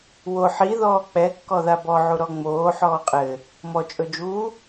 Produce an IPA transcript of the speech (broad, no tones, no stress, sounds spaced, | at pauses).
w o ħ i ð ɔː k͡p ɛ kː ɔ ð a b ɔ ʕ u ɾ ɔ ŋ͡m oː ħ ɔː qʼ ɘ | m ɔ t͡ʃʼ ɵ d͡ʒ uː